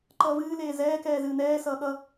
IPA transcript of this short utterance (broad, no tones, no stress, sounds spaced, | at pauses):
ǃ ʌː v ɨː l eː z ɛː k ɛː z ɨː n ɛː s ʌː ɠ ʌ